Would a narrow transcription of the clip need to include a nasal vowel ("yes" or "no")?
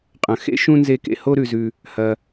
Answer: yes